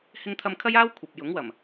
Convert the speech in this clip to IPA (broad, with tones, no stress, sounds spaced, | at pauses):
h ɪ˥ ŋ t̪ʰ ɐ˥ m kʰ ɐ˥ j aː˥ w kʷʰ ɐ˨ p̚ j ʊ˨˥ ŋ w ɐ˨˩ m